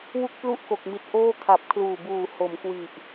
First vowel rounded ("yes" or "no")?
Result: yes